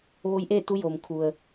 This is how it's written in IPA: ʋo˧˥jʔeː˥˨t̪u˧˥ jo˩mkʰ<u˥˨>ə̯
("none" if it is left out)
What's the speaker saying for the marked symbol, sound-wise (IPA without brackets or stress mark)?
u˩